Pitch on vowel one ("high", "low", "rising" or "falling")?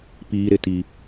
high